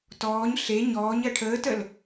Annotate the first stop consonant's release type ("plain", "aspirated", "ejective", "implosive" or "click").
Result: plain